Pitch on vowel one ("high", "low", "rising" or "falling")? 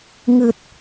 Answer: low